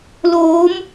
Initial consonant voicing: voiced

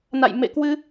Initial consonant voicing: voiced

